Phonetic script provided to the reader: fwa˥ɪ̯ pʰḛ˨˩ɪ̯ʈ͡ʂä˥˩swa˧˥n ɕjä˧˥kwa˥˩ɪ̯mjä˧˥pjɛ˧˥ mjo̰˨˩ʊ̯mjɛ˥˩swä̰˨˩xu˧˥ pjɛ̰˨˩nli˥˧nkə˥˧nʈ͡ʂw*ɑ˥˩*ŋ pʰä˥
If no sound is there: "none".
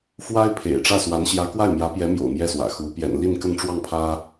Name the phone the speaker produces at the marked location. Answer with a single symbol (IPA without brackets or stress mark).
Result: ɑ˥˩